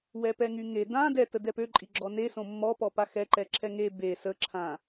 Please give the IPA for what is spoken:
w ɛ p ɛ ŋ y ŋ e d ã d ɛ t ə d ɛ p ø ǃʼ i ɡ͡ǁ ɔ n e s õ mː ɔ p ɔ p a x ɛ ǃ ɛ ǁʰ ɛ ŋ e b e s ə ǁʰ ã

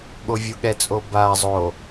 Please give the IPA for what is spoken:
ɠ o vʲ u ɠ ɛ t͡sʼ o b a zˤ o

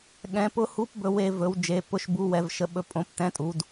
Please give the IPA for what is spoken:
ɠ ɛ̃˩˧ p ʊ˨˥ h u˨˥ p b ɵ˩˧ w e˩˧ v ɵ˩˧ w d͡ʒ e˩˧ p ʊ˨˥ ʃ b u˨˥ w ɛ˩˧ v ʃ ə˨˥ ɓ ɵ˨˥ pʼ õ˩˧ p t ɛ̃˨˥ tʼ u˩˧ d

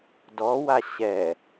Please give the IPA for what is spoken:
d ɔ w a ɕ ɛ

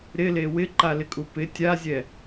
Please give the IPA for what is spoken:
ɾ ɪ l e w ɪ ǃ a l ɪ kʼ u p ɪ tʲ a zʲ ɛ

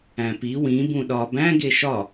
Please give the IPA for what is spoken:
æ̃ p i w ĩ b ũ ɗ ɒ b æ̃ ɡ e ʃ ɒ

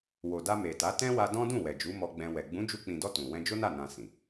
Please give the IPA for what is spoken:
w o˨ d a˧ m e˨ t a˨˦ t ɛ̃˦ w a˧ d ɔ̃˦ d ũ˦˨ w ɛ˨ d͡ʒ u˨˦ m ɔ˧ ɡ͡b ɛ̃˧ w ɛ˨ ɡ͡b ũ˨˦ d͡ʒ u˧ k͡p ĩ˨ d ɔ˧ t ũ˨ w ɛ̃˧ d͡ʒ o˦ n a˦˨ n ã˧ s ĩ˨

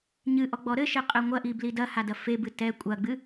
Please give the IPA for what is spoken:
ɲ ɨ ʔ ɔ ɡ͡b ɔ ɾ ɘ ʃ e qʼ ɛ ŋʷ ɐ ʔ i b l i d ɐ h a d ɐ f e b ɨ t ɛ kʷʼ ɐ ɡ͡b ɨ

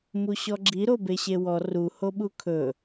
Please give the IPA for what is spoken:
m u ɕ ɔ ɡ͡ǁ i ɾ o b e ɕ e w ɔ r u h o ɓ u kʰ ɵ

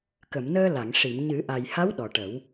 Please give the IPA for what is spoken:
k ə˨˩˨ m n əː˧ l a˨˩˨ ŋ ʂ i˨˩˨ m ɲ ɨ˨˩˦ ʔ a˨˩ j h a˧˥ w ɗ ɔ˨˩ ʈ ə˨˩˦ w

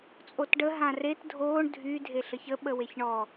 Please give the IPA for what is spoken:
t͡sʼ o t ɖ ə ɦ ã r e t dʱ oː ɳ dʱ y dʱ e ɬ ə ç ə ɓ ə w e ç ɳ ɔ

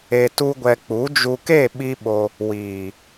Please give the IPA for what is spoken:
e˧ t u˦ ɡʷ ɛ˧ k͡p u˨˦ d͡ʒ u˧ k e˦˨ ɓ i˦ ɓ o˧ | w iː˨

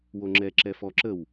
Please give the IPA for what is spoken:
w o ŋ͡ǁ ɛ ǁ ɛ f ɔ ǁ ə w

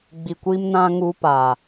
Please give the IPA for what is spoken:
ɡ͡b i˨ kʷ i˦ m n ã˦ ŋ u˦ p a˨

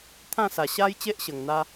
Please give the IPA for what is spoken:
t̪ʰ ã˥˧ s a˨˩ ɕ a˦ j t͡ɕ e˦ ʔ ɕ ə˨˩ ŋ n̪ a˦

